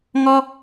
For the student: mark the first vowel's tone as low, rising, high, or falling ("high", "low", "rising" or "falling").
high